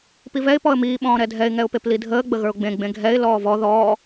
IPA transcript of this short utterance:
p i v ɛ ɪ̯ p ɔ ə̯ m iː ɓ ɔ̃ː ɾ ɛ dʱ ɛ ɪ̯ ŋ ɛ ʊ̯ p e p l i dʱ əː ɡ͡b ə ɣ ə˞ ʊ̯ ɡ͡b ẽ ɡ͡b ẽ ɡʱ ɛ ɪ̯ l ɔː v ɔ ð ɔː

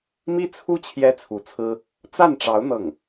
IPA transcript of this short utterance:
m i˥ t͡sʰ u˥ t͡ɕʰ j ɛ˥ t͡sʰ u˧˥ t͡sʰ ɹ̩˥ | t͡s a˥˩ n ʈ͡ʂ ɑ˧˥ ʊ̯ n̪ ɤ˥˩ ŋ

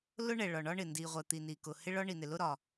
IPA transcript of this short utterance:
l ʊ˥ ɳ ɛ˩ ɭ ɒ˩ ɳ ɒ˥ ɳ ɪ˩ n d i˩ ʁʷ ɛ˩ t̪ i˩ n i˩ k ʊ˩ h ɪ˥ ɭ ɒ˥ ɳ i˩ n ɪ˩ l ʊ˥ ɾ ɒ˩

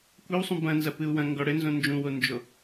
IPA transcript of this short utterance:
kʷ e w sˤ ũ b ɐ̃ n z ɐ p ɨ u̯ w ɐ̃ ŋ ɡ ɔ ɽ ɘ n z õ n d͡ʒ ũ w o n d͡ʒ o

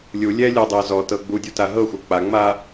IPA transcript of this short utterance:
lʲ u lʲ ɛ lʲ ɤ dˤ ɛ z ɔ t ɤ ɡ͡b u dʲ u t a ɦ ɤ xʷ ɤ k͡p a ŋ͡m a

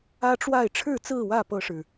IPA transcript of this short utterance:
ä˦ ʈ͡ʂ w a˥˨ ɪ̯ ʈ͡ʂʰ ɻ̩˥˨ t͡s ɹ̩˥˨ w ä˥˨ p ɤ˦ ʂ ɻ̩˨˩

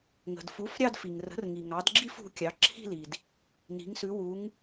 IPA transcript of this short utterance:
ŋ ə̤˩ d f u˩˥ f ɾʲ ɑ˥˧ d f i˩ ŋ r ə̤˩˥ r ŋ i˩ ŋ ɑ˩˥ d ɡ͡ǁ i˥˧ f ṳ˩˧ kʲ ɑ˩˧ ǁʰ i̤˥˧ l i˩ d | n i̤˩˧ ŋ s ʉ˩˧ w u˩˧ ŋ

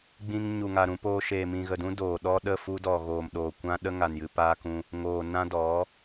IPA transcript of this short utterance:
ɡ͡b ĩ˧ ŋ ɲ u˨ ŋ a˨ ɾ ũ˧ p oː˧ ʃ eː˨ m ĩ˨ ɣ ə˨ d ũ˦ d oː˨ ɗ ɔ˦ ɗ ə˦˨ f u˦ d ɔ˨ ɣ oː˨ m ɗ oː˨ kʷ ã˦ ɗ ə˦ ŋ a˨ n j ɨ˧ p aː˦ k ũ˧ | ŋ oː˨ n ã˦ d ɔ˨˦

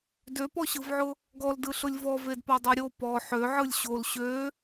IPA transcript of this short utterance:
d ø p ɔ ɕ ɯ v ʕ ʊ | ɡ ɔ l d ɯ ɬ ʊ lʲ v ɔ v e d p ɔ dˤ o ɾʲ o p ɔ ħ ø ʕ ɯ lʲ ɕ o l ɕ ø

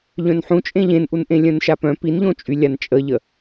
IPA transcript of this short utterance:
ʎ œ̃ n ħ ũ t͡ʃʼ ẽ ʎ ẽ n ʔ u n ʔ ẽ lʲ œ̃ n ʃ a p œ̃ p i n ʎ õ t͡ʃʼ y lʲ a n t͡ʃʼ ə ʎ ə

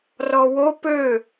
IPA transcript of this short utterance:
r ɔ w o p ø

